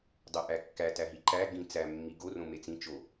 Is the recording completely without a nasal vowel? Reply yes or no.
no